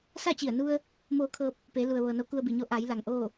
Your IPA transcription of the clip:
s a˥˨ t͡ɕ i˧˩ ə̯ n u˧ ə̯ | m oː˧ kʰ ɤː˧ p̚ | p e˩˧ l u˩ ə̯ ʋ ɤː˩ n o˧˥ k u˧ ə̯ b i˩ ɲ o˧˥ ʔ a˩˧ j l a˩ ŋ ʔ oː˥˨

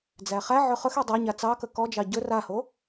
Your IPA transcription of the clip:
d͡z æ χ æ ʕ ɵ χ ɵ x i dˤ æ ɲ a t͡s ɑ k ə k ɔ d͡ʒ ɑ ɟ ɵ r a h o

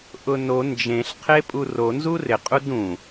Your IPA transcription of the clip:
ʔ ʊ n o n d͡ʒ ẽ ɬ qʰ e pʼ u r o n z u r ɪ qʼ u d ũ

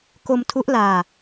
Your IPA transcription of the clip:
k o˧ m tʰ u˦˥ ʔ l aː˧

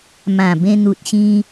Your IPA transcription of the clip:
m ã˨˩ b ẽ˧ n̪ u˨ t̚ ɕ ĩ˧

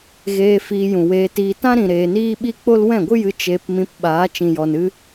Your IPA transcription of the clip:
ɣ eː˧ f iː˧ j ũ˨ w eː˧ t iː˧ t ã˦ ɾ ĩ˨ ɾ eː˨ n iː˦ ɓ i˦ k͡p o˦ l w ɛ̃˦˨ ɡʷ ɨ˦ j ɨ˧ t͡ʃ eː˧ p m ĩ˧ p ɓ aː˨˦ t͡ʃ ĩ˨ j ɔ˨ n ɨ˦

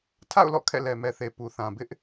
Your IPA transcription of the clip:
tʰ a̰˦˨ ʊ̯ l ɔ̰˦˨ kʰ ɛ̰˦˨ l ɛ˨ m ɛ˨ θ e˨ p u˨ θ ã˨ b ɪ˦ ʔ

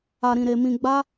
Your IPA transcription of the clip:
a˧ ɾ ĩ˧ ɾ e˧ m ĩ˧ ɡ͡b a˦

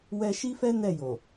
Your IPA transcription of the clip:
w ɛ˧ ʃ i˦ f ɛ˦ n ɛ˦˨ j o˨

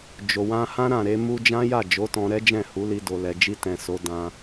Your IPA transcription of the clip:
d͡ʒ o˨ w ã˧ h ã˦ ɾ ã˦˨ ɾ e˧ m u˧ d͡ʒ ã˦ j a˦˨ d͡ʒ o˨˦ t ɔ̃˧ ɾ ɛ˦ d͡ʒ ɛ̃˦˨ h u˨˦ l i˧ d o˨ l ɛ˨ d͡ʒ i˧ t ɛ̃˨ s o˨˦ d ã˧

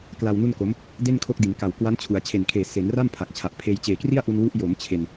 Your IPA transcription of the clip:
k l a˧ w n u˥˩ n k o˦˥ m | d e˥˩ n kʰ o˦˥ k̚ d i˩˦ n k a˨˩ w k w a˦˥ n t͡ɕʰ u˩˦ a̯ t͡ɕʰ e˨˩ n kʰ eː˨˩ s e˩˦ n r a˥˩ m pʰ a˨˩ k̚ t͡ɕʰ a˨˩ ʔ pʰ eː˧ j t͡ɕ eː˨˩ k r i˥˩ a̯ ʔ u˧ n w u˦˥ ʔ j o˩˦ m t͡ɕʰ e˧ n

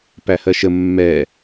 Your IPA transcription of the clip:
p æ h ɜ ʃ ə mː ɛ

